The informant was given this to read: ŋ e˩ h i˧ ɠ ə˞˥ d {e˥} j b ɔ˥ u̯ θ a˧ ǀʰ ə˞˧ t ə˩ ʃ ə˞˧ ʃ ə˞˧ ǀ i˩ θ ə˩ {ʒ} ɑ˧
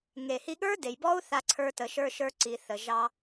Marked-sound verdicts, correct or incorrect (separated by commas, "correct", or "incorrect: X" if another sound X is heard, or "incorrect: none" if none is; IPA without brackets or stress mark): incorrect: e˩, correct